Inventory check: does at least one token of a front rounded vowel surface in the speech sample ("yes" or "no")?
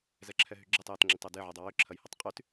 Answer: yes